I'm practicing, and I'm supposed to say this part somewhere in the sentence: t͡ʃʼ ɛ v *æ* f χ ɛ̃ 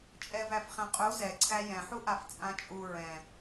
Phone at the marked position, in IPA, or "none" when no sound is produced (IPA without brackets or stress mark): æ